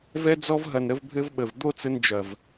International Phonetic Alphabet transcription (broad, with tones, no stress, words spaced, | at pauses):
vɛ˧d͡zɔ˧vɦɐ˨˩n ɾə˧vbʱɘ˧v ɓə˨˩vd̪o˥˧t͡sɘ˧n d͡ʒɐ˨˩v